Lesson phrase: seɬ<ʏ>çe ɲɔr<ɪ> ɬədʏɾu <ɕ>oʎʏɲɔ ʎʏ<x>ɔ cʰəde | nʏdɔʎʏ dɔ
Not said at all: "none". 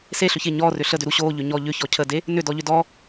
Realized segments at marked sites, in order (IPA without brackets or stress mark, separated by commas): ʏ, ʏ, ɕ, ç